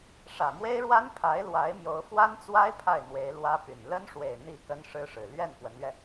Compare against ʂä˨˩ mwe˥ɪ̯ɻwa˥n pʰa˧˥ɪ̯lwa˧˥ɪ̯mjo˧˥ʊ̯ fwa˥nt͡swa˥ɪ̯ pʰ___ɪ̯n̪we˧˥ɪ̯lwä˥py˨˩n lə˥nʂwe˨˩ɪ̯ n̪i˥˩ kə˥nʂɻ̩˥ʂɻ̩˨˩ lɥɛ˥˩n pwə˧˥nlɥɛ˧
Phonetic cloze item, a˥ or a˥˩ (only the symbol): a˥˩